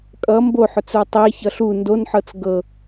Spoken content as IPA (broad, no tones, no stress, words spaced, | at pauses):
kʼʌ mboħʊt͡sə˞ tˤeçʌɬ u ndonħɤt͡s ɡɤ